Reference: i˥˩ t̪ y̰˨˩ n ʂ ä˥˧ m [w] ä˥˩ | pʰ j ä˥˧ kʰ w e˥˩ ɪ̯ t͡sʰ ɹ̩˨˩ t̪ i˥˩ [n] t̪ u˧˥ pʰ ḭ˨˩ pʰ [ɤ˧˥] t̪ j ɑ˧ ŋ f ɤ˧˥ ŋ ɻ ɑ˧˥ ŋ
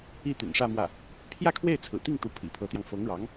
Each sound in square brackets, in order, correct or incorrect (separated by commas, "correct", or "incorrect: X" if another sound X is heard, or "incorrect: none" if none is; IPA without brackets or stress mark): correct, incorrect: ŋ, correct